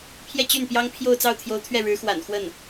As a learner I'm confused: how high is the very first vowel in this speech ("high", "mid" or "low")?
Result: mid